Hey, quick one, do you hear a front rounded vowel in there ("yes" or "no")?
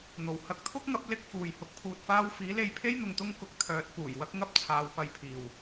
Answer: yes